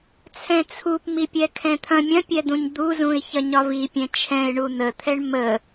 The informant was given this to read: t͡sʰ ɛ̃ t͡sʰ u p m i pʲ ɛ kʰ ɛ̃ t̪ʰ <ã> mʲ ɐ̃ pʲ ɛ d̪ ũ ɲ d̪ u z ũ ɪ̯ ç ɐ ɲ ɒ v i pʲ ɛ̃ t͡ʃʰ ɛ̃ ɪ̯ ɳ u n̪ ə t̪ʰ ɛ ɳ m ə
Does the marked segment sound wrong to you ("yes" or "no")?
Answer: yes